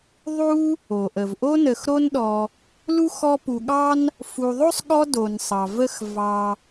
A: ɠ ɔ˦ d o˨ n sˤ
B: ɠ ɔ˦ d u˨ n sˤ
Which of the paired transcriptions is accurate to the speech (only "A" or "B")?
A